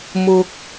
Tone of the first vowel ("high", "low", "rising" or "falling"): low